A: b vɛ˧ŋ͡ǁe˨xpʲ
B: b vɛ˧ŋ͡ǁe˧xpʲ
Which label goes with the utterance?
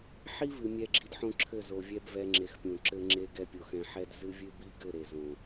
A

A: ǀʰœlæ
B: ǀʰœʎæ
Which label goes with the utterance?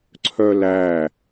A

